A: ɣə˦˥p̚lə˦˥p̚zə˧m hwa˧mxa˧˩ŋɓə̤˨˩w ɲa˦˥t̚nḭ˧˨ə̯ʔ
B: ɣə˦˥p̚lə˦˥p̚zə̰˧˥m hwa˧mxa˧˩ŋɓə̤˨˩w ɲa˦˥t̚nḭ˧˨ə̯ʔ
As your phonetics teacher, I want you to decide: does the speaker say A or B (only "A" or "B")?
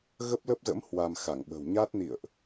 B